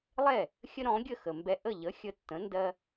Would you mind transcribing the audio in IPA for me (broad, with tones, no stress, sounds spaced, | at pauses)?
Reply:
lˠ ɛ˥˩ | xʲ ə˥ ɾ ɔ̃˩˥ ɡʲ ə˥˩ x ə˩ m b ɛ˧ ʔ ə˥˩ ʎ ə˩˥ xʲ ə˩˥ tː ə̃˩˥ n d ɜ˧